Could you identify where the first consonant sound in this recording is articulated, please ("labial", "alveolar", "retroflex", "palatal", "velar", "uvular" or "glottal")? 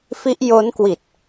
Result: labial